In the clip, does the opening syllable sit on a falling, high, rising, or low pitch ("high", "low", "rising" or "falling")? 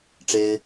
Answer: high